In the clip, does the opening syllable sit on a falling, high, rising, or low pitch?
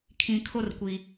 low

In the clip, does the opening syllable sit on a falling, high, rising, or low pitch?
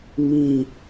falling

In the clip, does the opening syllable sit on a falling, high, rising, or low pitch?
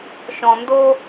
low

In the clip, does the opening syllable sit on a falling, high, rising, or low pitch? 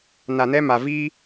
low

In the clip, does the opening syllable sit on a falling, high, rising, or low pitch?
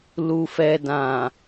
low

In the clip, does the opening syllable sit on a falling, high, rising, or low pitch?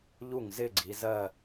falling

